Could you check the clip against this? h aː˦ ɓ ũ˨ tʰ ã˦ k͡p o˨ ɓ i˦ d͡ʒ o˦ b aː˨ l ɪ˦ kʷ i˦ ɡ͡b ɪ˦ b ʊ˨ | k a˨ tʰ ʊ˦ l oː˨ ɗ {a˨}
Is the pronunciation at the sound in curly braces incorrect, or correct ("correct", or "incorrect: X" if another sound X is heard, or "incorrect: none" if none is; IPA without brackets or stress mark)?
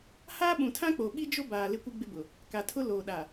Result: correct